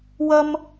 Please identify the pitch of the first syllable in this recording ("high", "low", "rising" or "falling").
high